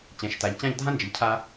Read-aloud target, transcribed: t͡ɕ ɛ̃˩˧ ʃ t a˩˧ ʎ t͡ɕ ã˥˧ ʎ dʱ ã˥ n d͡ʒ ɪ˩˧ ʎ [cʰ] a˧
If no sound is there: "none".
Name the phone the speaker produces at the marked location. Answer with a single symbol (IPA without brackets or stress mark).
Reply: cʰ